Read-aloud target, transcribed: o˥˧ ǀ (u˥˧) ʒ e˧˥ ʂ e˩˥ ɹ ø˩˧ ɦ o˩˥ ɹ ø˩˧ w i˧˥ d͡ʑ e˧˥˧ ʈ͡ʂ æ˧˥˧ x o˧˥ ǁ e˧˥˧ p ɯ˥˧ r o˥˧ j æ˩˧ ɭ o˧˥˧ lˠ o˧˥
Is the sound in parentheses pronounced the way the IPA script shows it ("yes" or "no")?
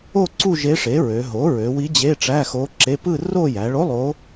yes